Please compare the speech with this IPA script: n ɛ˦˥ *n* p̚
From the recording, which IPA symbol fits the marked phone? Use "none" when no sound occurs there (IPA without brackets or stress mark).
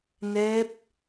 none